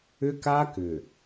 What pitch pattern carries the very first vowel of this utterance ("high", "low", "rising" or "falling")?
high